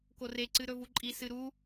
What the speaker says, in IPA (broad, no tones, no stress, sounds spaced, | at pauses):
k o r e ǀ ɨ ɾ ɵ v u ǃʼ i s ɨ ɾ u